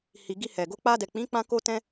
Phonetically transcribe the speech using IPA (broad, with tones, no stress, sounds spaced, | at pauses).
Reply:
h i˨ ɡ i˧ h ɛ˨ ɡ o˧ k͡p a˧ d ɛ˨ k͡p ĩ˨˦ k͡p ã˧ k o˧ t ɛ̃˧